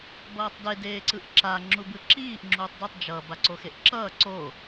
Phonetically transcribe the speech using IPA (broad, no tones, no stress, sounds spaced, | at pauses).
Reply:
b ʌː tˤ d e d eː ǀ ɯ ʔ ǁ a ŋ͡ǁ u b ɯ ǁ iː ʔ ŋ͡ǁ uː tˤ d u tˤ d͡ʒ ʌ b a ǀ o x e ʔ ǁ ʌː ǀ o